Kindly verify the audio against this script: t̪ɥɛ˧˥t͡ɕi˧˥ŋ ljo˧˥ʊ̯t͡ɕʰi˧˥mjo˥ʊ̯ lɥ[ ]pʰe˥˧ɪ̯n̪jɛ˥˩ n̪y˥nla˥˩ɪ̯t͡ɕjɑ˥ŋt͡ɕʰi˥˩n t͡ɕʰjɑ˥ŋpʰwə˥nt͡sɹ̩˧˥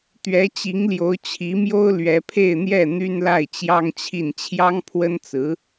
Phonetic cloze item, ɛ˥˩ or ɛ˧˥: ɛ˧˥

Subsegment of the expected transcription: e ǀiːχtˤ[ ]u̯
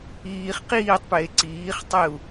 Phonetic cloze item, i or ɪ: ɪ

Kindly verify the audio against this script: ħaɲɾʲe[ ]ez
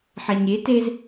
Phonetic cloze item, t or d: t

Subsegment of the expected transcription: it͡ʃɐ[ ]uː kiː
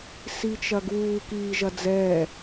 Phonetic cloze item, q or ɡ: ɡ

